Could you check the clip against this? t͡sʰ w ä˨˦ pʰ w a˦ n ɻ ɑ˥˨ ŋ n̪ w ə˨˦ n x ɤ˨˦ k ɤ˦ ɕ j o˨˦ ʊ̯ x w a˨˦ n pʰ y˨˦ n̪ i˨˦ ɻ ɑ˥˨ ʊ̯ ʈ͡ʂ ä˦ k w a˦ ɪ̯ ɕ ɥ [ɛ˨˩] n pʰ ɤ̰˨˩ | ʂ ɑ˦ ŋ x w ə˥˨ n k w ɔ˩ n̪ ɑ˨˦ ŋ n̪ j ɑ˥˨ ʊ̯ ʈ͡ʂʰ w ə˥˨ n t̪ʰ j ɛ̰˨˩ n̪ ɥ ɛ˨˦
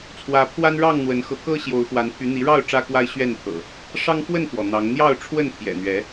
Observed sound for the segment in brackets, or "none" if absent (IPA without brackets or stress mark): ɛ˥˨